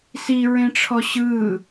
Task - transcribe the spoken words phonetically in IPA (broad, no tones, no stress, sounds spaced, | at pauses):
s i ɹ ẽ ʈ͡ʂʰ ɔ ɕ ɯ